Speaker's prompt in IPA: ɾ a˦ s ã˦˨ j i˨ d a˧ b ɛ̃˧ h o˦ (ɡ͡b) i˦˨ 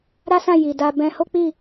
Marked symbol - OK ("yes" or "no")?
no